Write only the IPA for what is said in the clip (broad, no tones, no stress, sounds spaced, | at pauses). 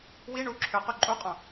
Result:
w i ɳ u ǁʰ ø q y ǃʼ u qʼ õ